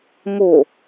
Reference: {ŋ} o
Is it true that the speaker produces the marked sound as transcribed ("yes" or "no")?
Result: yes